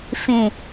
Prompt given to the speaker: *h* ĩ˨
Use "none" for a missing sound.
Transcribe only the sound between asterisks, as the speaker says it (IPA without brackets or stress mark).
f